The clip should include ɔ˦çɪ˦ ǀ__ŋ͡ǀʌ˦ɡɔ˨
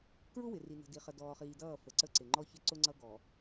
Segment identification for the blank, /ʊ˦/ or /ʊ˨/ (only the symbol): ʊ˦